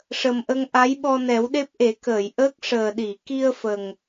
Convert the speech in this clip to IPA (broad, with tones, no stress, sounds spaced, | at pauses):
ʂ ə˨˩ m ʔ ə˧ ŋ ʔ a˧˥ j ɓ ɔ˧ n ɛ˨˩˦ w ɗ e˦˥ p̚ ʔ e˨˩˦ k əː˨˩˨ j ʔ əː˦˥ k̚ ʂ əː˨˩ ɗ i˨˩˨ k i˧ ə̯ f ə˨˩ ŋ